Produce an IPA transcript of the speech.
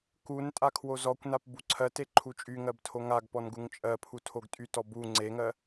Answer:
k u n tʼ a kʰ w o z ɔ kʷ n a p b u ǀʰ ɜ t e ǃʰ u t͡ʃʼ y ŋ ɜ b tʰ o ŋ a ɡ p ɔ n ɡ u ŋ t͡ʃʼ ɜ pʰ u tʰ o ɡ tʼ y t ɔ b u ŋ͡ǀ e ŋ ɜ

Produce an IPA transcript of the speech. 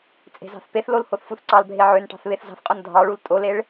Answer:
t͡sʼ e̤ z ɑ̤ θ p e θ l o l h o θ f u θ ǀ ɑ l bʱ e ʕ ø n ʈ ɑ̤ θ β e θ z ɑ̤ θ qʼ o n dʱ ɑ ɭ u l tʼ o l e ɭ

